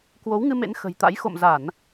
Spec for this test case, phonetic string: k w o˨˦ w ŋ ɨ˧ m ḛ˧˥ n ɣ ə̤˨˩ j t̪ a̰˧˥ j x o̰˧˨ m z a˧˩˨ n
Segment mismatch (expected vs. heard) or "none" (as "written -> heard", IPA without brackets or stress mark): ɣ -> x